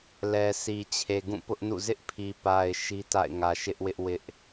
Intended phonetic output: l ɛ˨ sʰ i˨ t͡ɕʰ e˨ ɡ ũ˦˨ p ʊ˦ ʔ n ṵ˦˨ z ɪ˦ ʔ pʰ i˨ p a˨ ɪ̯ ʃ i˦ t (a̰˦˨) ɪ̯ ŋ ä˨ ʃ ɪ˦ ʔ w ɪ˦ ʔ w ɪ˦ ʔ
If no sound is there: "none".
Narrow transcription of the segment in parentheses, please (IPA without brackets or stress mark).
a̰˦˨